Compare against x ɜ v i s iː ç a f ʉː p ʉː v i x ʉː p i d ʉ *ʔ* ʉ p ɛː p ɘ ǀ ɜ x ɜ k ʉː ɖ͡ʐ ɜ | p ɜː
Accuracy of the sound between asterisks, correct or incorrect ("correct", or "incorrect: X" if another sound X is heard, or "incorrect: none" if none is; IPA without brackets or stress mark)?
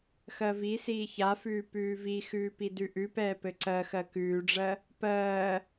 correct